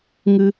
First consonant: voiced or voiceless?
voiced